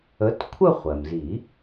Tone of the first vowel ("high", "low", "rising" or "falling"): rising